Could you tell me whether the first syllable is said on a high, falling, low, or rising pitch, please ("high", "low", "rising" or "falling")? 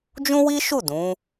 high